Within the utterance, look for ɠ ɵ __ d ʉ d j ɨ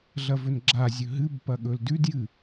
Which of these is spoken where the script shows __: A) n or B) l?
B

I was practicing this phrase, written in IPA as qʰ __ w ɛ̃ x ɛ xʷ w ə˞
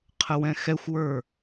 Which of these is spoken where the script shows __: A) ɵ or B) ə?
B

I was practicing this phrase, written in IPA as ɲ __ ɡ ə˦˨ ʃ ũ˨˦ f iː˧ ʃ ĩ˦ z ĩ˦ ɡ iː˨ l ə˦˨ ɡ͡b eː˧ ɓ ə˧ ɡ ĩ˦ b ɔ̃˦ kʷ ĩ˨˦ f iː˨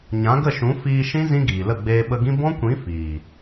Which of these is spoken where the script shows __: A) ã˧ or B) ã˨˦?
B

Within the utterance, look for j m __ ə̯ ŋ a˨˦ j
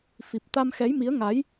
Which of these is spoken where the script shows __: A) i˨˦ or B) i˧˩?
A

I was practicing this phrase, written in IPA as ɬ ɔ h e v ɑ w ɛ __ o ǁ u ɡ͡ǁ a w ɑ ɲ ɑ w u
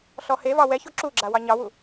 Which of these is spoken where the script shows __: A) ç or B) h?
A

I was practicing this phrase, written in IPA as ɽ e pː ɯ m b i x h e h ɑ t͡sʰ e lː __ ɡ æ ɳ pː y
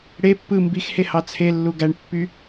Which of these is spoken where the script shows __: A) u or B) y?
A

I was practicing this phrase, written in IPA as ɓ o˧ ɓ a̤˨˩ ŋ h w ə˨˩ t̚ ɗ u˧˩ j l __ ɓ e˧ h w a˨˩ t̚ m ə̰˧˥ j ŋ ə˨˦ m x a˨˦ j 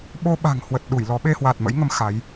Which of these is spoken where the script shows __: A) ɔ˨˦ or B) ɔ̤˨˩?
A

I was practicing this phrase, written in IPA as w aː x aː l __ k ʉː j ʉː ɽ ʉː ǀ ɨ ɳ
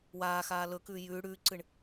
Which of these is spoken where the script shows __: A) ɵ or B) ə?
A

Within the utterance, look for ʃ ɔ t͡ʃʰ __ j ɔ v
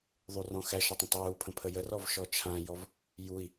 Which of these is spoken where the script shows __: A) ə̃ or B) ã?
B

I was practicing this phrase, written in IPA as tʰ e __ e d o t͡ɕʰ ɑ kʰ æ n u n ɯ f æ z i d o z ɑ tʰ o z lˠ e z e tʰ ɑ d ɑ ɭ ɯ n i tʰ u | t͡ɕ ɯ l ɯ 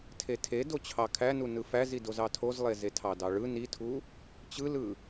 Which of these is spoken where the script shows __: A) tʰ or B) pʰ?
A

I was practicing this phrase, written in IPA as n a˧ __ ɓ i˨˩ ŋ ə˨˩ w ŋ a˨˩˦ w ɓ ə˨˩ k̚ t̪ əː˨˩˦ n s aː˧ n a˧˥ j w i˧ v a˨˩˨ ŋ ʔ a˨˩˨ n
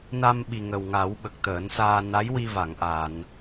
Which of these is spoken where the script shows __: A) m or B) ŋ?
A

